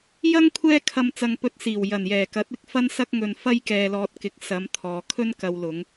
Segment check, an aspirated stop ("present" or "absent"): present